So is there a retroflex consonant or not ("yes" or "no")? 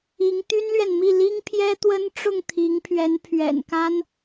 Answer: yes